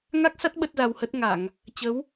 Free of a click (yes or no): yes